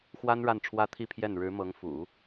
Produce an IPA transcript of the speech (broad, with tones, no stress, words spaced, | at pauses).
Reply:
xwa˥n ɻa˥˩nʈ͡ʂʰwä˥t̪ʰi˥˧pʰjɛ˥˩n ɻɻ̩˧˥ mɤ˧˥ŋfṵ˨˩˦